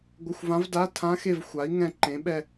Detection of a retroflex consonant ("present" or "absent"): absent